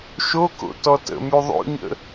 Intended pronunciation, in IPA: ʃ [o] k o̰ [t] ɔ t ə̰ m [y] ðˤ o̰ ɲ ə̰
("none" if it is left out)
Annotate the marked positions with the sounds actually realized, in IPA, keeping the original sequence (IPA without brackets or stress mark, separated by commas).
o, t, y